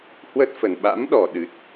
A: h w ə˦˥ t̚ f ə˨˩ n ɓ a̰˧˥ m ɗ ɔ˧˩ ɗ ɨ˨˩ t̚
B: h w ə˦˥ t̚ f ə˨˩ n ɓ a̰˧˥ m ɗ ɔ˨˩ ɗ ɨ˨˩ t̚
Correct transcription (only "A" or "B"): B